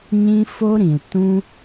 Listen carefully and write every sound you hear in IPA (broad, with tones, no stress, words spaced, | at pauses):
ɲĩ˦ fo˦ɾĩ˨ltũ˦